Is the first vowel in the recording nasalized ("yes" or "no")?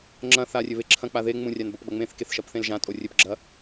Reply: yes